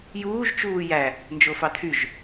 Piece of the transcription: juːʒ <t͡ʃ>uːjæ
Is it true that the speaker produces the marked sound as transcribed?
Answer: yes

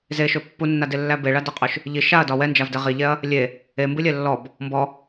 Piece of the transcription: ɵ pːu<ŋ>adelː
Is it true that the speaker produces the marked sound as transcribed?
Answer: no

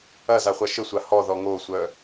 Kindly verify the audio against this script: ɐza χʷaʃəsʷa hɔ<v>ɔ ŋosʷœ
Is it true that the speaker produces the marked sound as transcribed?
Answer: no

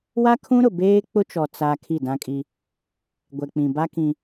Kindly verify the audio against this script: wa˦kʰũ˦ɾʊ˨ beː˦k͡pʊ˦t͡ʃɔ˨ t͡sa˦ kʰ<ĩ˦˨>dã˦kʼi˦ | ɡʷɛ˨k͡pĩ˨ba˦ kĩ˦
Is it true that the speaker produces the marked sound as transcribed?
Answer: no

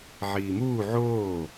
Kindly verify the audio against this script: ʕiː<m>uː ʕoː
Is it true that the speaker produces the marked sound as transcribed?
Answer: yes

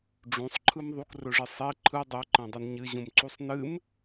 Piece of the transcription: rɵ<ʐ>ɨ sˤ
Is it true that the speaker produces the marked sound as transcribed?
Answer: yes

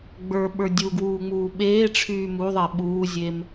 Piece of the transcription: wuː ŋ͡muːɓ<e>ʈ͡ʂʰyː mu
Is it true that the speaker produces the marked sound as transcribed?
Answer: no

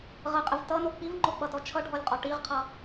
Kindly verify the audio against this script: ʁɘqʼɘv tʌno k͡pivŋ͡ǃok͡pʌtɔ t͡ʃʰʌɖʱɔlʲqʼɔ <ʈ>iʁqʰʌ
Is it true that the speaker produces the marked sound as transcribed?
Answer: yes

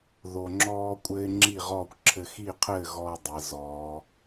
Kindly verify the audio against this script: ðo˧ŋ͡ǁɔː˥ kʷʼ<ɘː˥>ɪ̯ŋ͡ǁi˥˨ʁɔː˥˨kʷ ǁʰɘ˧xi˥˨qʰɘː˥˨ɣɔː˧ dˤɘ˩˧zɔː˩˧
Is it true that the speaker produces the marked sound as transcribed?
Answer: yes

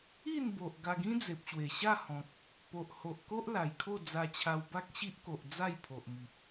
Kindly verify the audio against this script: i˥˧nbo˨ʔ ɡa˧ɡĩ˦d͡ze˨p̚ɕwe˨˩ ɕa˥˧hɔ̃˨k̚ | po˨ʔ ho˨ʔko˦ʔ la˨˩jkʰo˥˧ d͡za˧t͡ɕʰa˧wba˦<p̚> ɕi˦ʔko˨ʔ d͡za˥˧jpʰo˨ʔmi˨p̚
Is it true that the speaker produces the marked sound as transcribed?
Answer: no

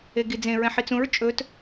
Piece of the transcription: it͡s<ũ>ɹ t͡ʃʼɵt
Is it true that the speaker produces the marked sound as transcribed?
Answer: yes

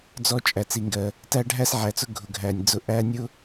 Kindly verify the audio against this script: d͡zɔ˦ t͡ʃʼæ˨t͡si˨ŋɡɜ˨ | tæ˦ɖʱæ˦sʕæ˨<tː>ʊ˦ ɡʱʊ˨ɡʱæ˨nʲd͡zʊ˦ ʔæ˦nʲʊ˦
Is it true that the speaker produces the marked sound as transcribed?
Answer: no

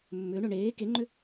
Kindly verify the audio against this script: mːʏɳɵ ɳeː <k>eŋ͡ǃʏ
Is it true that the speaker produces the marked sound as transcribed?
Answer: yes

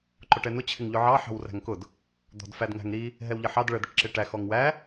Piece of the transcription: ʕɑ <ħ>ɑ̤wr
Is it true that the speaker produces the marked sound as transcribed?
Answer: yes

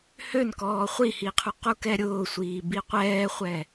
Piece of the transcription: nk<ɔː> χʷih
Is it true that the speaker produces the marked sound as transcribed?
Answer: yes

